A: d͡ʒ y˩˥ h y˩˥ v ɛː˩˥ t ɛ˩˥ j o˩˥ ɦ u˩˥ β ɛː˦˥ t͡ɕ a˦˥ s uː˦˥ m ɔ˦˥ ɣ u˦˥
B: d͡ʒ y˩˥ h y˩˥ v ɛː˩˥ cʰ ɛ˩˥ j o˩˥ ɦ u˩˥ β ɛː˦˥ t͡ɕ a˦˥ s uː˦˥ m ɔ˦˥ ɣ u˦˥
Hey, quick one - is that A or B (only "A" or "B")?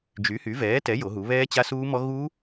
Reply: A